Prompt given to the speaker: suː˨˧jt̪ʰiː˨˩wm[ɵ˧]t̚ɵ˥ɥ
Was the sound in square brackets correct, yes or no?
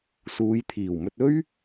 yes